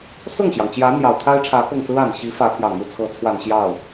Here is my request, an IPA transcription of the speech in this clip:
s ʊ˥˩ ŋ ɕ j ɑ˩ ŋ t͡ɕ j ä˧˥ n̪ j ɑ˨˩ ʊ̯ t̪ʰ a˥ ɪ̯ ʈ͡ʂʰ ä˧˥ k ɤ˥˩ ŋ t͡s ɹ̩˥ a˨˩ n ɕ i˧˥ f ä˧˥ pʰ j ɑ˨˩ ŋ n̪ u˥˩ t͡sʰ ɤ˧˥ t͡sʰ w a˨˩ n ɕ j ɑ˥˩ ʊ̯

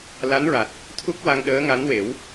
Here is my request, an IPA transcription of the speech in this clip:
l a˧˥ n ɹ a˨˩ t̚ | t̪ʰ u˦˥ k̚ w a˧ ŋ ɗ əː˧˥ ŋ a˧˥ n w e˨˩˦ w

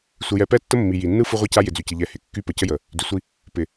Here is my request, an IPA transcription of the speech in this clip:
sʷ ɪ˨ j ɛ˨ p ɛ˦ tː ə˦ mː i˨ j i˨ nː ɯ˦ f ɯ˦ ʁʷ i˦ c a˦ j ɪ˨ d͡z y˨ c ɪ˨ ʎ ɛ˨ h ɪ˨˦ kː y˦ p ə˨ c ə˦ j ə˨ | d y˨ sʷ i˦ | p ɪ˨

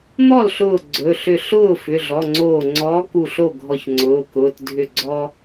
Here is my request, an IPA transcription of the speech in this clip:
n̪ ɔ˥˩ l ɬ ʊː˧˩ ɡ͡ǀ ɵ˩˧˩ ɬ ʏ˧˩ ɬ ʊː˥˩ f ʏ˩˧˩ ɮ ɔ˩˧˩ ŋ͡ǀ oː˧˩ ŋ͡ǀ ɔː˨˥ k u˧˩ ɬ o˥˩ ɡʱ ɔ˧˩ ç ŋ͡ǀ ʊː˩˧˩ k ʊː˩˧˩ t dʱ ʏ˧˩ ɡ͡ǀ ɔ˥

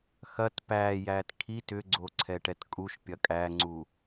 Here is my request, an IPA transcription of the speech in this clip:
x ɐ t p æː j æː t kʰ i t ʏ ɡ͡ǀ o ǀʰ ɛ ʈ ɛ t kʼ u ʃ pʲ ɐ kʼ æ ŋ͡ǀ u

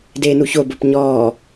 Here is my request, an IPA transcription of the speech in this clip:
d eː n u ç o b o p ɲ ɔː

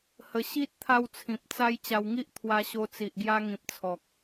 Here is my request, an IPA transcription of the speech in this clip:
h ə˧ ɕ i˦ t̚ t̪ʰ a˧ w t͡sʰ ĩ˨ p̚ t͡s a˧ j t͡ɕ a˧ w ŋ i˦ ʔ t̪ʰ w a˧ ɕ o˧ t͡s i˨ ʔ ɡ j a˧ ŋ ĩ˨ p̚ t͡sʰ ɔ˨ k̚

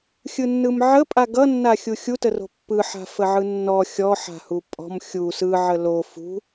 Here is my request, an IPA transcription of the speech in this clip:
xʲ ɯ nː ɯ m ʕ ə pʼ a ɡ ʌ nː a xʲ u xʲ u t ə r o̤ pː ɯ ħ a̤ f ə ʕ ɯ nː ɔ xʲ ɔ ħ a̤ h u pʼ ɔ̤ m xʲ u s ɯ ʕ ə l o f ṳ

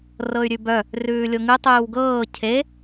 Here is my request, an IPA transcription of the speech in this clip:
r ɤ y̯ ɾʲ ʉ b œ | r ʉː lʲ o ŋ ʉ tˤ ʉː w ɡ ɤː cʰ e

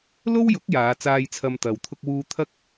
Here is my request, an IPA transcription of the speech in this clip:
l o˥ w j ʊ˨˥ k̚ j aː˨˧ t͡s aː˧ j t͡sʰ ɐ˧ m t̪ ɐ˨ w t̪ʰ ʊ˧ k̚ w uː˧ t̪ʰ ɐ˥ k̚

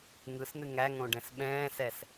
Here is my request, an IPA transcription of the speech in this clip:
ŋ ɯ s n̪ ɨ ŋ æ ŋ õ ɖ ɛ̃ s ɓ ɛ̃ː s ɛ s

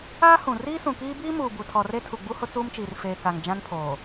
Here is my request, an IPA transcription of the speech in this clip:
aː˦ h ũ˨ r iː˦ s ũ˨ k iː˦ b iː˦ m uː˨ b u˨ tʰ ɔ˨ r e˦ tʰ u˨ ɡ͡b u˦ h ʊ˦ t͡s uː˦ m t͡ʃ iː˨ r f eː˨ k a˨ ŋ d͡ʒ ã˦ n pʰ oː˨

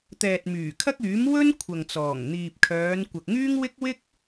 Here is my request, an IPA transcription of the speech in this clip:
t̪ ɛː˨ t̚ m yː˨˩ kʰ ɐ˥ k̚ yː˨˥ m w ɵ˥ n kʷʰ ɐ˨ ŋ t͡s ɔː˨˩ ŋ n̪ iː˨ p̚ kʰ œː˨˧ n kʷ ɐ˨ k̚ ŋ yː˥ ŋ w ɪ˥ k̚ w ɪ˥ k̚

